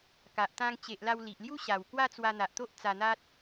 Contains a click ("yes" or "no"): no